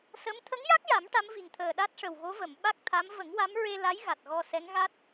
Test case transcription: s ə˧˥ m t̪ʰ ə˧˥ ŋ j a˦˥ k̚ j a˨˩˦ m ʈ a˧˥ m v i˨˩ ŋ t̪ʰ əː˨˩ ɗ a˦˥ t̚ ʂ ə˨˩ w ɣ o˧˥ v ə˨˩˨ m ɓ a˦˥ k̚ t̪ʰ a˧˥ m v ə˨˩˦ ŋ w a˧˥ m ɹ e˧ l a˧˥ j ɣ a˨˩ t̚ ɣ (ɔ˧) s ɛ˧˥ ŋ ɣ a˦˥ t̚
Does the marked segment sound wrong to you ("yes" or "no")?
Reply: no